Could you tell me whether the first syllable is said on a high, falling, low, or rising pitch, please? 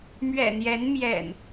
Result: low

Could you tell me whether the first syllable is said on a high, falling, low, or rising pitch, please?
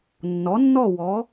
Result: rising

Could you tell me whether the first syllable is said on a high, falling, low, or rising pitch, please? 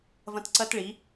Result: high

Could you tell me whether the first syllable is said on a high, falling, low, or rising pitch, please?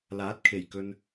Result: rising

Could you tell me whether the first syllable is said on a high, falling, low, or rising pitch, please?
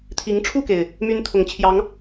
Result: rising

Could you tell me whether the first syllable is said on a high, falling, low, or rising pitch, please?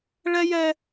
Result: high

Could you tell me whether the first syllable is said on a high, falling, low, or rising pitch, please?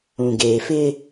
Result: low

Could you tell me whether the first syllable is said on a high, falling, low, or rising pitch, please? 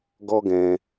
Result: high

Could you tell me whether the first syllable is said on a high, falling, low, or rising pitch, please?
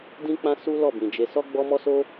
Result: high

